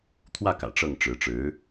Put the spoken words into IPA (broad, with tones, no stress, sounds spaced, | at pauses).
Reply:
t̪ʰ w ä˥˩ k ä̰˨˩ ʈ͡ʂ ɤ˥˩ ŋ ʈ͡ʂ ɻ̩˧˥ ʈ͡ʂ ɻ̩˧˥